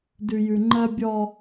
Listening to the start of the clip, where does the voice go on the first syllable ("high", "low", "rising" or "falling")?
low